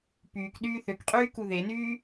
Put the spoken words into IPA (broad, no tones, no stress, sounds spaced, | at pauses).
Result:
p yː k ɗ yː θ ø k qʼ yː k u ð e n yː